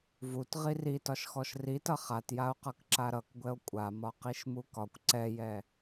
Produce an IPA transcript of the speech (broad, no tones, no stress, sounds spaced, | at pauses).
v u t ʁ i r i t ɒ ʃ x ɔ ʃ r i t ʌ χ a t j a o̯ q ʌ k ǁ a ɾ ʌ k ɡʷ ɛ o̯ kʷʼ a m ɒ q i ʃ m u k ɒ kʷ ǀ ɛ j ɛ